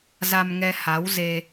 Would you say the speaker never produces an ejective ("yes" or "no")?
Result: yes